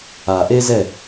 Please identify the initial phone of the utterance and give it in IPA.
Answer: a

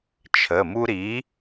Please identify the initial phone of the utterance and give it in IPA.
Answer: t͡ʃʰ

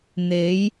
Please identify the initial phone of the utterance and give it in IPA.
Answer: n̪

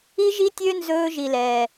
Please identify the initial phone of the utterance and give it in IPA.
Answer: i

